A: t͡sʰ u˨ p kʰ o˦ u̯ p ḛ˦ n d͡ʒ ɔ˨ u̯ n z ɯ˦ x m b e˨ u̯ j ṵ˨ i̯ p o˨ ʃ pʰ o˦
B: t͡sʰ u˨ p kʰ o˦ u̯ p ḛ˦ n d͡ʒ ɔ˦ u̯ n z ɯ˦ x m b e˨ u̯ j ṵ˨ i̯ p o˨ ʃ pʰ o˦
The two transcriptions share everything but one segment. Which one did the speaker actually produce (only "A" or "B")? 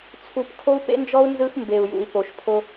B